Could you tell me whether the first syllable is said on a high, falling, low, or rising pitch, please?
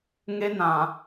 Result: high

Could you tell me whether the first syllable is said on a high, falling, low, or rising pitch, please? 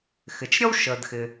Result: low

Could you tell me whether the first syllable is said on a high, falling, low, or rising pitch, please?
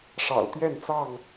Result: low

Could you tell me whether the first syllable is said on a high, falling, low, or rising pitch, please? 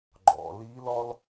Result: low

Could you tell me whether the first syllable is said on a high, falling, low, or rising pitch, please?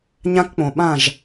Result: high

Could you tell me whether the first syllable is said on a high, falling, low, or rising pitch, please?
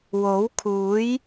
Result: rising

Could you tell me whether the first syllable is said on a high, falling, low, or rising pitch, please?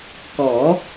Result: rising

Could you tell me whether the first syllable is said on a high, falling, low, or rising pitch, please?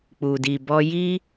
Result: low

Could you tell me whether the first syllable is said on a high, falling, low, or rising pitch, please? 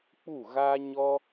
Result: falling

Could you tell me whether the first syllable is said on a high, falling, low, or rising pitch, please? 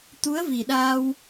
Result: rising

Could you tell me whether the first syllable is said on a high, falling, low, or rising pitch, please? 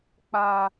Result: high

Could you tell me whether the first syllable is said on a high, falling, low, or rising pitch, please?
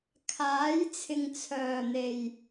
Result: rising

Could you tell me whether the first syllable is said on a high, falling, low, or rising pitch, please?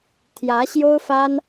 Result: rising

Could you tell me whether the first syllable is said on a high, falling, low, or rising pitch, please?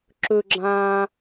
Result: high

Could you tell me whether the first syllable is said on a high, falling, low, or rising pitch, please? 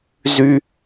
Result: high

